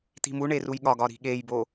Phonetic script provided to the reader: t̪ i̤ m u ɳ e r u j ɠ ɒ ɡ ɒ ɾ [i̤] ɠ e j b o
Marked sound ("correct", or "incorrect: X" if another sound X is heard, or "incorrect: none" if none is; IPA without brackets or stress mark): correct